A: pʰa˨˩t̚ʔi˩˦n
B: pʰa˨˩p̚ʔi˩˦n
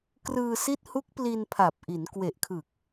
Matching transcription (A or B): B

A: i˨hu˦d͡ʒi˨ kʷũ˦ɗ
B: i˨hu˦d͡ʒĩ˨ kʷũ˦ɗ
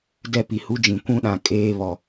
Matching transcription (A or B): B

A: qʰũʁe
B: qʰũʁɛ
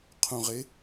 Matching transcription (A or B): A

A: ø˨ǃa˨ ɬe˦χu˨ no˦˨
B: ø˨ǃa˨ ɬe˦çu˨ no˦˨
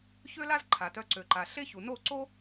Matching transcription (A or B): B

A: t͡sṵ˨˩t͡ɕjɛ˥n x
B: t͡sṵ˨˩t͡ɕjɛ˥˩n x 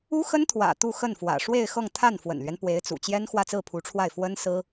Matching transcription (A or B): A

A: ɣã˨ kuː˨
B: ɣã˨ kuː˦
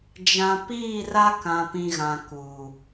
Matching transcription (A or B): A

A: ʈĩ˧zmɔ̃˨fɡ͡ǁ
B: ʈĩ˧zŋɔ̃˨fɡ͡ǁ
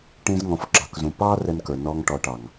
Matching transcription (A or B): B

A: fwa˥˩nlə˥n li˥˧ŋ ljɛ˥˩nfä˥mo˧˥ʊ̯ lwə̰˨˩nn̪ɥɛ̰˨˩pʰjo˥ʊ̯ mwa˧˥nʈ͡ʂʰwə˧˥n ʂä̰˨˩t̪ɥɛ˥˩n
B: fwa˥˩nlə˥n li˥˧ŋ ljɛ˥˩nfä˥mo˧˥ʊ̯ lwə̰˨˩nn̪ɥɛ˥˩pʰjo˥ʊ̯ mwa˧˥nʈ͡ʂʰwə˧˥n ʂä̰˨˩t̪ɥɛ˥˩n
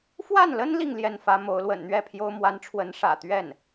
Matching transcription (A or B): B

